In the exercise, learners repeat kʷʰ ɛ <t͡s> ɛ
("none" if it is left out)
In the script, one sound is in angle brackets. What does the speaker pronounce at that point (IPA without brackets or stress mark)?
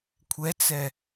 t͡s